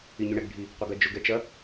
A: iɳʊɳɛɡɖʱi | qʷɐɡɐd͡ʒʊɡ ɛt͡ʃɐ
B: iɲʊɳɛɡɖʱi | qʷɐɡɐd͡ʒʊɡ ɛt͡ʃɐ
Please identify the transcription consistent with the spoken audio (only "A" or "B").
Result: B